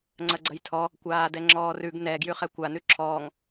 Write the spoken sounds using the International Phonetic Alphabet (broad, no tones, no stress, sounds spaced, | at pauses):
ŋ͡ǀ ɐ ɡ͡ǀ ɐ j tʰ ɔ | kʷ aː d ɛ ŋ͡ǁ ɔː r ʉ ɡ n ɛ ɡ j ʉ χ ɛ kʷ a n ʉ ǁʰ ɔː ŋ